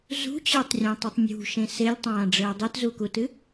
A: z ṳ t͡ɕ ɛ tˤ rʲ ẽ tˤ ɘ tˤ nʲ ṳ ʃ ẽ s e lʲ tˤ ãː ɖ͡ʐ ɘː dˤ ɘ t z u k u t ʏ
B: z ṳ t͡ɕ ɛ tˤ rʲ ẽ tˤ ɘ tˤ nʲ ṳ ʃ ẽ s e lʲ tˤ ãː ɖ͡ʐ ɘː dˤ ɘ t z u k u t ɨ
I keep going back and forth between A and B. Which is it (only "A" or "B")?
B